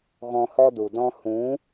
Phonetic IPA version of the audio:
ɣ ɔ̃˧ h ɔ˦ d u˨ d ɔ̃˦ h ũ˨˦

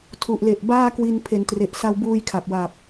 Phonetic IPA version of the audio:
tʰ u˨˩ ʔ l e˨˩ ʔ b aː˥˩ k w i˧ n pʰ e˩˦ n t r e˨˩ ʔ s a˧ w b uː˧ j kʰ a˨˩ p̚ w a˨˩ p̚

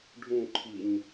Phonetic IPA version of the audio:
ɖʱ ũ ǃʰ i ɲ

